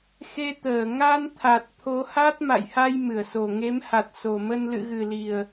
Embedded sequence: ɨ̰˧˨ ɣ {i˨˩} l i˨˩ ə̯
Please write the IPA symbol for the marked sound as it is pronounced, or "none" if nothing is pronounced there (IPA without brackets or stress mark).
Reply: ɨ˨˩